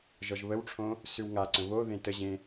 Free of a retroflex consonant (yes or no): no